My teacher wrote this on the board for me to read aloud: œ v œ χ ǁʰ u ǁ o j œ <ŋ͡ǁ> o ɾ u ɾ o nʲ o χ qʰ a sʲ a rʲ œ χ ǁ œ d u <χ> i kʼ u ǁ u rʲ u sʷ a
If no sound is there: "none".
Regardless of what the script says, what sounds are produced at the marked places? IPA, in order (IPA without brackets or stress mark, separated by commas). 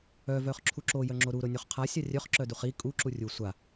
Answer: ŋ͡ǁ, χ